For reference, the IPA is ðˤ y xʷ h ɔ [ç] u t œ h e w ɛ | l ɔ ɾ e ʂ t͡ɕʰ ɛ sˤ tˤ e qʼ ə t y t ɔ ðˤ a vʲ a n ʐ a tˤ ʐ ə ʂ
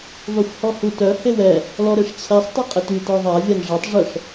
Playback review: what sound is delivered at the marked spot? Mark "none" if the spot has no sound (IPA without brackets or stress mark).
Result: h